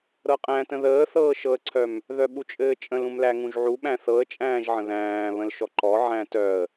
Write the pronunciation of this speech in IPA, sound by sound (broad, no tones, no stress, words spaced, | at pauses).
ɾɤqʼæ̃tə̃ ðəːθɤːʃɤə̯ǀʰœm | ðœɓut͡ʃʼɘːt͡ʃʼə̃l ũmlæŋũʒʕu ɓæ̃θɤə̯t͡ʃʼæ̃ːʒ ʕə̃ðæ̃ː βə̃lʃɔǃɔ ʕæ̃tœə̯